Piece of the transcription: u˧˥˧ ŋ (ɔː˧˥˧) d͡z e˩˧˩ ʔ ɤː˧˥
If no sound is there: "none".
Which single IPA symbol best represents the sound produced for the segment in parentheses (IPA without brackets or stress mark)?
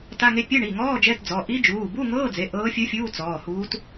ɤː˧˥˧